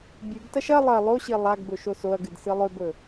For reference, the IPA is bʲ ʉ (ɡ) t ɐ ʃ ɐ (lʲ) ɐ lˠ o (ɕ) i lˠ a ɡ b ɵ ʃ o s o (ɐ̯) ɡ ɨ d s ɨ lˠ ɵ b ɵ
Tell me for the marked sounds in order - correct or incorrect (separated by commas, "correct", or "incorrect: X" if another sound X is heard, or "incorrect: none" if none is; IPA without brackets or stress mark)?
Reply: correct, incorrect: lˠ, correct, correct